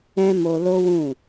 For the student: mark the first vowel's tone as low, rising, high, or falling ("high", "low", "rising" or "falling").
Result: high